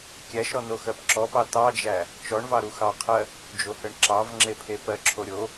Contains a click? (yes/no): yes